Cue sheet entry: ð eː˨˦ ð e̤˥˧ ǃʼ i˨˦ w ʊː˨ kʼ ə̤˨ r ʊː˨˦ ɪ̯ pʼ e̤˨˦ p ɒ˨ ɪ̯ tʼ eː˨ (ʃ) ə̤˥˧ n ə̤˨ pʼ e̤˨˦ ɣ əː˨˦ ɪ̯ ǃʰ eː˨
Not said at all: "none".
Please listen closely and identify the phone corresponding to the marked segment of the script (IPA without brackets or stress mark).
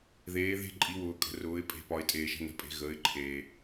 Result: ʃ